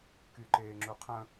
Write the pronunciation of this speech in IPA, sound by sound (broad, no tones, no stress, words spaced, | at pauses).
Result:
kyǃeːŋ͡ǁuqʰə̃